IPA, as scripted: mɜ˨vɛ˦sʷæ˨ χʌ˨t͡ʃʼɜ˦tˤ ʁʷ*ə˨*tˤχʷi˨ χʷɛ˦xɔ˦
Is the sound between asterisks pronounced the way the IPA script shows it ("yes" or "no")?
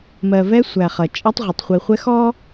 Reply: no